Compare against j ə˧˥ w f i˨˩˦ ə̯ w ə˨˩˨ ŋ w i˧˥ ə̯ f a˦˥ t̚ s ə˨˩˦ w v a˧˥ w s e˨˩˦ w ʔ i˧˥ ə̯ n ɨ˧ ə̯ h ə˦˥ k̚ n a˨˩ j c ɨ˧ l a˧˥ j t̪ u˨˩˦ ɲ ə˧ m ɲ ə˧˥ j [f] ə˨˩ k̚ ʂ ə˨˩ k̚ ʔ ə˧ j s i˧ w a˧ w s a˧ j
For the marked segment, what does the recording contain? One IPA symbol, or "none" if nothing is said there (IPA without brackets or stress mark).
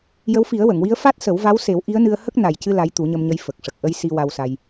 f